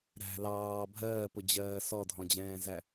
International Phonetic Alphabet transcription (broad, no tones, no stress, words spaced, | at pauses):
ɾæ̤ lɑː bʱɜːpʊd͡ʑɜː sɔdʱɔ̃d͡ʑɛ̃ːzæ